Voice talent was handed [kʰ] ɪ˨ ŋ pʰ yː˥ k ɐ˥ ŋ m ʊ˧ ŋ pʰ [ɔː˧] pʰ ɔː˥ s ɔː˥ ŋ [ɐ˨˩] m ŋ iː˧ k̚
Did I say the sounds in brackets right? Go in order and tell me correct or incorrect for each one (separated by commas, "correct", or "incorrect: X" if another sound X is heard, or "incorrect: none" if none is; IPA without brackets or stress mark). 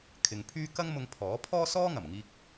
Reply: correct, incorrect: ɔː˨˥, correct